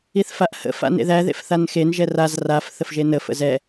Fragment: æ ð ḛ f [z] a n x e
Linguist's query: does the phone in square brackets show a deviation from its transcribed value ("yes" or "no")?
yes